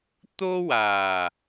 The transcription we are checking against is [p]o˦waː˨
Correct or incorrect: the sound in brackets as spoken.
incorrect: t̪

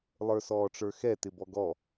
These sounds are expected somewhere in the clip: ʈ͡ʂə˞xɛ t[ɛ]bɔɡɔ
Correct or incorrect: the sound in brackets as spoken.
incorrect: ɪ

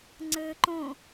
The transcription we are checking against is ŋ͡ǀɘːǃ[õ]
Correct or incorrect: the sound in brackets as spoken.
correct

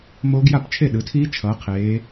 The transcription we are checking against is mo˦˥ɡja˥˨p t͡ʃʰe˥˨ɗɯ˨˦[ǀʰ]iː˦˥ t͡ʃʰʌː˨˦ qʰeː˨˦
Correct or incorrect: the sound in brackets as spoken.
incorrect: tʰ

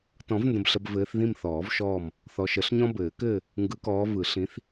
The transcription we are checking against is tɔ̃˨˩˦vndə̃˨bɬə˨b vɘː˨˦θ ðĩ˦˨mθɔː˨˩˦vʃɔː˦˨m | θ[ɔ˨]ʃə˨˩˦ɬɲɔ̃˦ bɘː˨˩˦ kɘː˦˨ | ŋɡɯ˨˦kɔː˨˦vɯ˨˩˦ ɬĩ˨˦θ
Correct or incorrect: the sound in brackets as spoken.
correct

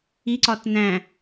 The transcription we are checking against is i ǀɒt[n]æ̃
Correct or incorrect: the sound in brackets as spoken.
correct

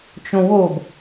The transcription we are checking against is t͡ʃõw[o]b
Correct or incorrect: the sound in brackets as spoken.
correct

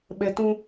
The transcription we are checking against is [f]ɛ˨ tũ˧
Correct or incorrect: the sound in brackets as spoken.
incorrect: ɓ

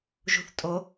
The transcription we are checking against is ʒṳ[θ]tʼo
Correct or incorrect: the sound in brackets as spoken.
correct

